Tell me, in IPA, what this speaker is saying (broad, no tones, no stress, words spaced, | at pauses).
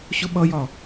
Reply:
ɕʊɓʌjɒ